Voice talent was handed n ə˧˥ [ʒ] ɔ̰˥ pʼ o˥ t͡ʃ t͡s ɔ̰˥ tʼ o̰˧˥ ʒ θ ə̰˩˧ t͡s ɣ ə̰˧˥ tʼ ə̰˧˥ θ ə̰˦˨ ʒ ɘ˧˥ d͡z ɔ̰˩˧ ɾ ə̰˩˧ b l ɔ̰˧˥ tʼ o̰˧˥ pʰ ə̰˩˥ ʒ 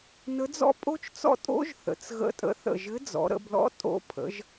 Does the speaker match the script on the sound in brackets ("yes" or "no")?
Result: no